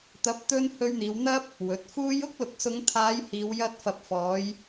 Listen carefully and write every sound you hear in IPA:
t̪ ɐ˨˥ p̚ t̪ ɵ˧ n h ɵ˧ ɥ n̪ iː˨˧ w n̪ ɐ˥ p̚ | w ɵ˨˥ t̚ f uː˥ j ʊ˥ k̚ l ʊ˨ k̚ s ʊ˨˧ ŋ t̪ʰ aː˨˧ j h iː˨˧ w j ɐ˧ t̚ f ɐ˨ p̚ f ɔː˨˧ j

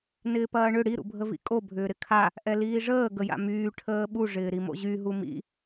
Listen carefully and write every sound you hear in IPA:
n ɪː p ɐː ɳ ʏ ɽ i ɾ ṵ bʱ ə v ḭ kʼ o bʱ ʏː ɾ ɪ kʰ a | ʔ ɛ l iː ʐ əː ɡ ə j a̰ m yː ʈʰ əː ɓ u ʐ ɪː ɾ i m o̰ ʑ y ɦ u m ḭ

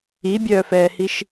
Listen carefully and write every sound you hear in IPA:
i bʲ œː f ɛː h i ʃ

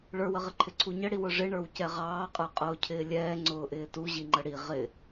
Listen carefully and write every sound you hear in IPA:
ɭ ə˞ w ə ʁ ɪ ǃʰ ɪ ǀʰ u ɲ ə ɽ i w ʊ ʐ ɪ ɳ ə˞ w c ɛ ʁ ɑː qʼ ə˞ qʼ ʊː cʰ ɪː lʲ ɛː ŋ͡ǀ ʊː ʔ ɪː t u ʑ i ŋ͡ǃ ə ɽ i ʁ ɪ

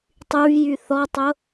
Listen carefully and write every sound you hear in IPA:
tˤ y v j y θ ɔ tˤ ʊ

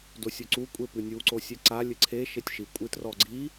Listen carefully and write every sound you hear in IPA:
d o sʲ o ǀ u kʷʼ e p ɨ nʲ u ǀ o sʲ ɛ ǀ a lʲ ɘ ǀʰ e ʃ e tʲ ʃ i kʷʼ ɨ t r ɔ ɡ͡ǀ i

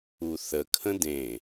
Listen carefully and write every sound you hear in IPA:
u θ ə kʰ ə̃ d ẽ

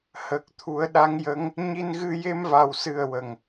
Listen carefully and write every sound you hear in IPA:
h əː˨˩ k̚ t̪ʰ u˨˩˦ ə̯ ɗ a˧˥ ŋ j ə˧˥ ŋ | ɲ i˧ n ɣ ɨ˧ j e˧ m v a˨˩ w s ɨ˨˩ ə̯ w ə˨˩ ŋ

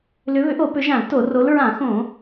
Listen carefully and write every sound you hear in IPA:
l ʏ˨˦ β ʏ˨˦ ʔ o˧˩˧ p ʏ˨˦ ʒ ã˧˩˧ l t o˧˩˧ r o˨˦ l ɹ ã˧˩˧ x õ˧˩˧

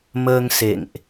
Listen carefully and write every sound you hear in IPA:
m əː˧ ŋ s ḛ˧˨ ŋ ʔ

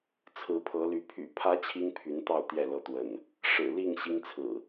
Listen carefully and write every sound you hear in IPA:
t͡sʰ ɹ̩˨˦ pʰ ɤ˨˦ l y˨˦ pʰ y̰˨˩ pʰ ä˨˦ t͡ɕʰ i˦ ŋ pʰ y˨˦ n t̪ ɑ˥˨ ʊ̯ t̪ j ɛ˥˨ l ɤ˦ t̪ w ə̰˨˩ n | ʂ ɻ̩˨˩ l i˥˨ ŋ ɕ i˦ ŋ t͡sʰ ɹ̩˨˩

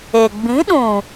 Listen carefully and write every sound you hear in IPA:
eː˨ ɡ͡b ĩ˨˦ ɗ ũ˨

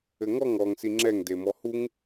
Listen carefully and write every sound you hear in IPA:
ɘ ŋ ɔ ŋ ɔ ŋ s i ŋ͡ǁ ɛ ŋ d e m ɔ h u ŋ

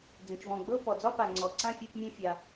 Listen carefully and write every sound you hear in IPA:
d͡z ẽ˩ t͡ʃ v ɔ̃˩ ɡ͡b ɤ˥˨ p ɔ˩ d͡z ɒ˥˨ p a˩ ŋ͡ǀ ɔ˩ ǀ ã˥˨ fʲ e˥˨ p mʲ ɛ̃˥˨ fʲ a˩

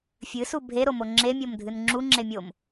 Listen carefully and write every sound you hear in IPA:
fʲ ɨ s u bʱ e ɾ o m o ŋ͡ǁ e mʲ o m dʱ ɨ n ŋ͡ǁ u ŋ͡ǁ e mʲ o m

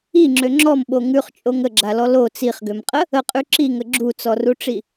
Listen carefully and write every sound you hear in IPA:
i ŋ͡ǁ ø ŋ͡ǁ ɔ m ɓ o ŋ ʉ χ t͡ʃʼ o ŋ ə ɡ͡ǁ a l ɔ l o t͡s i χ ɡ ø m qʼ ə | ə qʼ ʉ ǁ i ŋ ə ɡ͡ǁ u t͡s ɔ r u ʈ͡ʂ i

